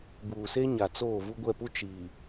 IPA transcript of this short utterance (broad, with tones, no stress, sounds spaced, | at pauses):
b uː˨ s e˦ ɲ a˨ t͡s oː˦˨ v u˦ ɡʷ ɛ˦˨ p u˦ t͡ʃ iː˨